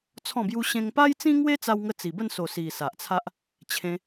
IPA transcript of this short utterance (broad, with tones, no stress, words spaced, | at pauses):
t͡sʰɔ̃˥˧bju˦ɕẽ˦ŋ pa˦jt͡sĩ˦ ŋwe˦t͡sa˧w ŋə˧t͡si˨˩bə˥˧nso˨˩ si˨˩ sa˨ʔt͡sʰa˦ʔ | t͡ɕʰẽ˧